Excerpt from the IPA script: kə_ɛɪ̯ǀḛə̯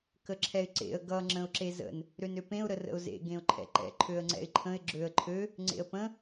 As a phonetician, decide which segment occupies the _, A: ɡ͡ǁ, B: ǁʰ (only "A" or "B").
B